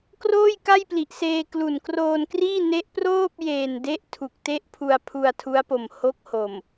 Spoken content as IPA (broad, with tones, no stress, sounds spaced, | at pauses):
k r oː˥˩ j k a˥˩ j p l i˨˩ ʔ s eː˧ k l u˨˩ n k r oː˧ n k r iː˥˩ n e˦˥ ʔ p r oː˥˩ p̚ j eː˨˩ n d e˦˥ ʔ tʰ u˨˩ k̚ t e˥˩ ʔ pʰ u˧ a̯ pʰ u˧ a̯ tʰ u˦˥ a̯ p o˨˩ m h o˦˥ k̚ h o˨˩ m